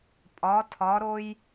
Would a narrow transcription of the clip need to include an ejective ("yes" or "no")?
yes